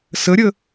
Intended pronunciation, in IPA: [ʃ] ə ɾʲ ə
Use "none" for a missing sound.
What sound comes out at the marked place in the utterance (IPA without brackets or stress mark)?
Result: s